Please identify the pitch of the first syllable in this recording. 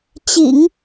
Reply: low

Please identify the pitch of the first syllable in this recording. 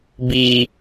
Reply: high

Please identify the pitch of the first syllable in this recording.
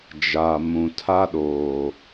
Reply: low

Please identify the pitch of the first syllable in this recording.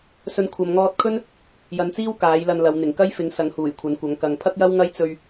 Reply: low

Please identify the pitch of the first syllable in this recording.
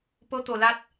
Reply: rising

